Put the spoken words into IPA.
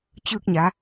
t͡ɕ ɯː˧ k̚ ɲ a˩˧

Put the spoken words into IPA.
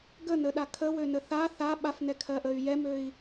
ɡ ə n ə ɗ a kʰ ə w ø n ə θ a θ a ɓ a f n ɛ kʰ ɜ ʔ ə y̯ j ɛ m ø i̯

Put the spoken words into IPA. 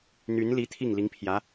n̪ y˧˥ n l i˧˥ t̪ʰ i˥˩ ŋ l i˧˥ ŋ pʰ j ä˧˥

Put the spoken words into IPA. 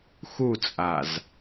x u t͡sʼ a z

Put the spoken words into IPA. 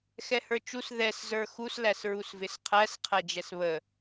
x ɛ h ə˞ t͡ʃ u s ð ɛ s z ə˞ x u s l æ s ɹ u s v ɪ s qʰ æ s qʰ æ d͡ʒ ɛ s β ə

